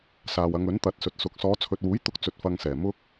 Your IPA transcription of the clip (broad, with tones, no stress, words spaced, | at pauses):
saː˨wɐ˨˧ŋɵ˨˥n t̪ɐ˨˥t̚sɵ˨t̚sʊ˨˥k̚ sɔː˨˧t͡sʰɵ˨t̚wuː˨˥j t̪ʊ˥k̚t͡sɵ˧t̚ fɐ˧ŋsɛː˨˩ mʊ˥k̚